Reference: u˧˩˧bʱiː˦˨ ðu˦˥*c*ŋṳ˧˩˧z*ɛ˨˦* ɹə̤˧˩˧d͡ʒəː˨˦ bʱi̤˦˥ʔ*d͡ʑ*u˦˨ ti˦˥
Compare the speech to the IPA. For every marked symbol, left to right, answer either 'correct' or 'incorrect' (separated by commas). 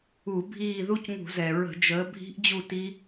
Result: correct, incorrect, correct